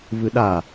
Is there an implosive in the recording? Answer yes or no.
yes